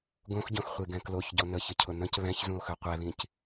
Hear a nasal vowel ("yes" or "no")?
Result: yes